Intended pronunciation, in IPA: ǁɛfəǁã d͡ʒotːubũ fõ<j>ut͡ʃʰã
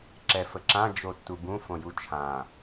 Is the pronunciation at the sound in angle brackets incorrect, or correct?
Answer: correct